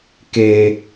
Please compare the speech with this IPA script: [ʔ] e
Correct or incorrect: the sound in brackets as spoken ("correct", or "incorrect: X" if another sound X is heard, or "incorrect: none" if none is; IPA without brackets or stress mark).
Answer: incorrect: k